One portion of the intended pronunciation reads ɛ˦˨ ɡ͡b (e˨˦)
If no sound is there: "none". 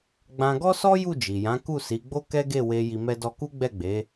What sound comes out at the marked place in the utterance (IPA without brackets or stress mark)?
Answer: e˨˦